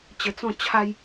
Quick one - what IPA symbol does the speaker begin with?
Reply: t͡ɕ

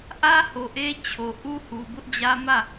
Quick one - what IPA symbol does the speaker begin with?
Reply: ʔ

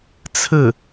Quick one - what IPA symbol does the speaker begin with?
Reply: t͡sʰ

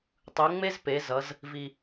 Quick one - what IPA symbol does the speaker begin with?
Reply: tˤ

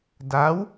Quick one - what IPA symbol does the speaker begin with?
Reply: d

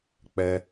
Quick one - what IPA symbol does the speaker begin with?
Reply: k͡p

